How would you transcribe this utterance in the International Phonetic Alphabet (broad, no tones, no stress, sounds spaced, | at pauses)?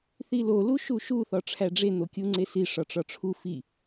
θ i l o l u ʃ u ʃ u θ ɒ ʈ͡ʂʰ æ ɖ͡ʐ e n̪ o kʲ u ŋ͡ǀ e s i ʂ ɒ ʈ͡ʂ ɒ ʈ͡ʂʰ u f i